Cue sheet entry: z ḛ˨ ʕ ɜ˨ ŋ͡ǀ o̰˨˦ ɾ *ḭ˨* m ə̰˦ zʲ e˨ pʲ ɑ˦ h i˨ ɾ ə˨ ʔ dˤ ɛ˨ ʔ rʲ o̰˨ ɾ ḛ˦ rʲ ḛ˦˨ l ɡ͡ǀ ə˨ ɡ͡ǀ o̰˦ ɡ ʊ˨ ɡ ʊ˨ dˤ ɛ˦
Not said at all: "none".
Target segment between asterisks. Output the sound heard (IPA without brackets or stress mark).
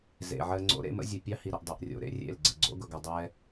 ḛ˨